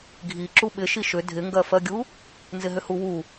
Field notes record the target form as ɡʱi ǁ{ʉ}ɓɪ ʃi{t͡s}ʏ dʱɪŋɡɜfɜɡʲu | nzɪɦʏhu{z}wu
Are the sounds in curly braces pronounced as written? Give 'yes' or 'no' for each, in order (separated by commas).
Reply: no, no, no